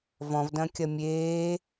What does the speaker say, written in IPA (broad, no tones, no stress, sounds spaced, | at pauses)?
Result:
v ɔ̃ v d ɐ̃ kʲ ɐ mʲ eː